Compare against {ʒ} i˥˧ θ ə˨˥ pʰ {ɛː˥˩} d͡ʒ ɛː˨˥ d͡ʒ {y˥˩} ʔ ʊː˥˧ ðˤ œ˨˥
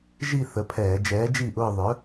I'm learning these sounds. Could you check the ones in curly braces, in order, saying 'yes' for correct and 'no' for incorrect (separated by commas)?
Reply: yes, no, no